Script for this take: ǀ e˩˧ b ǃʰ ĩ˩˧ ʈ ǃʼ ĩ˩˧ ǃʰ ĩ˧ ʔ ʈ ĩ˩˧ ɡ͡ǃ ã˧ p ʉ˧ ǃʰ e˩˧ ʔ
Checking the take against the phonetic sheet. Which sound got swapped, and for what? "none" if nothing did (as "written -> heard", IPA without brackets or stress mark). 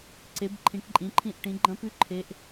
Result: ã˧ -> ɐ̃˧